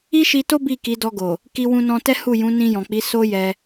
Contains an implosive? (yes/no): no